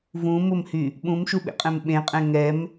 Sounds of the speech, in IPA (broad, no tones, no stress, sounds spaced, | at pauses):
v ũ m ʊ m h y | ɓ ũ m ʃ u ɓ ḛ qʼ ɛ̃ m ɓ ẽ qʼ ɛ̃ ŋ ɛ m